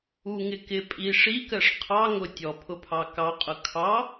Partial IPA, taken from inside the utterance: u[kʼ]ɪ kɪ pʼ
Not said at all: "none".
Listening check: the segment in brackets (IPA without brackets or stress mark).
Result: ŋ